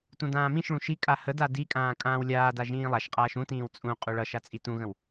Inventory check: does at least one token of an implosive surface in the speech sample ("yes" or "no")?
no